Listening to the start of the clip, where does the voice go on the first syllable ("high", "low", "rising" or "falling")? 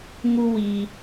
high